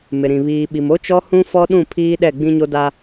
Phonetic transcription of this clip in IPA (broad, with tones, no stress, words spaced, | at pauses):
mɪ˨ɾĩ˨ βiː˨ɓi˨mo˦t͡ʃɔ˦ hũ˦ fɔ˦ɗũ˦˨ pʰiː˦ɗɛ˦˨ ɡ͡bĩ˦ɲo˦da˦